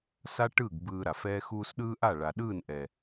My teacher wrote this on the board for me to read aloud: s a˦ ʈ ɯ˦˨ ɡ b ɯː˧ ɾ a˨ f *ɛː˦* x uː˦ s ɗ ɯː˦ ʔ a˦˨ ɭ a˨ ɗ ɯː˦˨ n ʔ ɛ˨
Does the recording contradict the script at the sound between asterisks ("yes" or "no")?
no